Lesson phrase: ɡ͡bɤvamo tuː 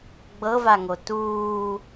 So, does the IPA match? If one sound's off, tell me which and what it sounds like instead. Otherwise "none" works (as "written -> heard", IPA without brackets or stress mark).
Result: m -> ŋ